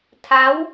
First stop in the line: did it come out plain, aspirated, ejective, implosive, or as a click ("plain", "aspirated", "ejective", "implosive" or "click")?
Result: aspirated